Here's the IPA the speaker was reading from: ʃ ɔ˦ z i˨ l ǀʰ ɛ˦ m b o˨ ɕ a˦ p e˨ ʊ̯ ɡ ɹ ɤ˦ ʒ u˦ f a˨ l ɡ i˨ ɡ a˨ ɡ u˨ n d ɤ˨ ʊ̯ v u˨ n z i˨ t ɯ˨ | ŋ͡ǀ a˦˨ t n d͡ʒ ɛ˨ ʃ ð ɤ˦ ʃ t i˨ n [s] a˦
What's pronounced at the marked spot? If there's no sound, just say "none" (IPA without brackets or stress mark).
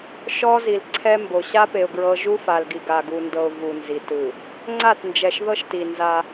z